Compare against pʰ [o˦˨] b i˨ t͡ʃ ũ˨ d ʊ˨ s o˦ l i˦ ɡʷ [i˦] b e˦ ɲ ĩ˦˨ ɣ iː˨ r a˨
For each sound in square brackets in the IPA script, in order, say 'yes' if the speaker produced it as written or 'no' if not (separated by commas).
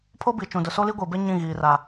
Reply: no, no